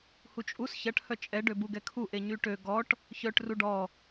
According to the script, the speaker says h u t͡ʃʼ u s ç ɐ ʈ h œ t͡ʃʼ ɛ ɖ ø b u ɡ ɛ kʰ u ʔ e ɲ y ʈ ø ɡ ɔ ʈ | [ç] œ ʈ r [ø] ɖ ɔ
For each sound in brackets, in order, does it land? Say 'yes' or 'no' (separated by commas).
yes, no